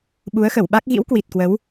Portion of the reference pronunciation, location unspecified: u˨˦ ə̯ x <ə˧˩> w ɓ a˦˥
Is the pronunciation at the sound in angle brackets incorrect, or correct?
correct